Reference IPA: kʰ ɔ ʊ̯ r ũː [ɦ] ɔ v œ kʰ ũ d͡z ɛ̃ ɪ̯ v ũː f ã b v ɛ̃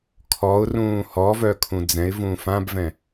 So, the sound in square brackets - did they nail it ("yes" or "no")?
no